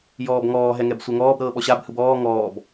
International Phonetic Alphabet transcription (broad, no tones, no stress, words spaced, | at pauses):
jɔːbŋɔː ɦɛŋɛbsʷɛŋɔːb ɾɤːɓɔɕab hɯbɔː ŋɔːb